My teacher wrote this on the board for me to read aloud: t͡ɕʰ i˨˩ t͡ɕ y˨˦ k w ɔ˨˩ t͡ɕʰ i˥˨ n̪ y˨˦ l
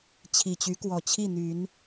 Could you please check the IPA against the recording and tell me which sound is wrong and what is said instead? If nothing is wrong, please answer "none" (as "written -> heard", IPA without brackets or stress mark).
l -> n